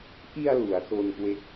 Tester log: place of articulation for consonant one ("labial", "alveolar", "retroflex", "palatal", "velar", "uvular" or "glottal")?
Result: glottal